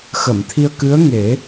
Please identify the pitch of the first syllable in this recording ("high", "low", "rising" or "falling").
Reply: low